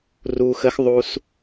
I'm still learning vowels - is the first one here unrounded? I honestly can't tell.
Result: no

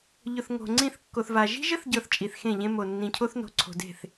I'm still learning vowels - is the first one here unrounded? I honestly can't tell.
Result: no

